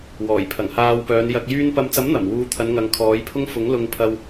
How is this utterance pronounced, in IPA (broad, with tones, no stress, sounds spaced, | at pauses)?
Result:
w ɔː˨˩ j pʰ ɐ˨˩ ŋ h aː˧ w p œː˨˧ n j ɐ˨ k̚ j yː˧ n p ɐ˨ m t͡s ɐ˨˥ m n̪ ɐ˨˩ m w uː˨˧ t̪ʰ ɐ˨˧ n ŋ ɐ˨˧ ŋ kʰ ɔː˨˧ j pʰ ʊ˥ ŋ f ʊ˨˥ ŋ l ʊ˧ ŋ pʰ ɐ˧ w